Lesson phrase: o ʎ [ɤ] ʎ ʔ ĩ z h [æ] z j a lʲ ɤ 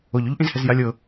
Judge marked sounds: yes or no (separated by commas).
no, no